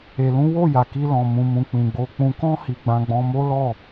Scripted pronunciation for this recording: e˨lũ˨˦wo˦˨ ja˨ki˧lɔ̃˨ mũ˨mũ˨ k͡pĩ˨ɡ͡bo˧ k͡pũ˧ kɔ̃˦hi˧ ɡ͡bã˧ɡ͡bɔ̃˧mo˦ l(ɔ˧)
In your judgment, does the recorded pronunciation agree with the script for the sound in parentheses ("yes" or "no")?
no